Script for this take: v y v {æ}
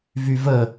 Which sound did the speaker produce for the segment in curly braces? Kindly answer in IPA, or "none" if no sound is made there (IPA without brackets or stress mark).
ə